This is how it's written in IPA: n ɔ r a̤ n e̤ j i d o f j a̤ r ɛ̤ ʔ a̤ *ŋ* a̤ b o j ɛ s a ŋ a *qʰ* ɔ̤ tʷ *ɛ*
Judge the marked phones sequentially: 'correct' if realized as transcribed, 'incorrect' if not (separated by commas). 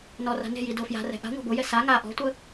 incorrect, incorrect, incorrect